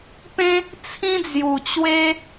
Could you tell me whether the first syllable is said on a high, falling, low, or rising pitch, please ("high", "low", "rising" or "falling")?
high